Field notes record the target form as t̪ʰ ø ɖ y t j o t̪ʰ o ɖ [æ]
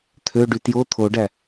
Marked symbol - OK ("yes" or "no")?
yes